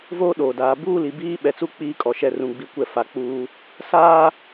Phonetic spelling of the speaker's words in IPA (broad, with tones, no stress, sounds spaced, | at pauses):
v oː˦ ɗ oː˨ d aː˨ b uː˦ l i˨ b iː˦ ɓ ɛ˨ t͡s u˦ k͡p iː˦ kʼ ɔ˨ ʃ ɛ˦˨ r ũ˦ ɡ͡b i˦ kʷ ɛ˦ f a˨ k͡p uː˦ | s aː˦